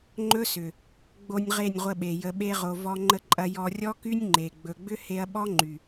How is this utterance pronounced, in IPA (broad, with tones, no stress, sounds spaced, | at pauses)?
ŋ͡ǃ ɵ˦ s ʏ˨ | ɡ͡b o˧ nʲ ʁ e˦˨ nʲ ʁʷ ə˧ ɓ e˨ j ə˧ ɓ e˦ ʁ o˧ v ɔ˧ ŋ͡ǃ ə˧ ǃʼ ɐ˧ j ɔ˧ rʲ ɔ˦ k y˦ nʲ ŋ͡ǃ e˨ ɡ͡b ɵ˨ ɡ͡b ʏ˦ h e˦ ɐ̯ ɓ ɔ˦ ŋ͡ǃ y˨